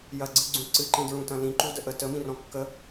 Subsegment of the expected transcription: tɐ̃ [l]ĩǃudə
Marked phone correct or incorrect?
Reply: correct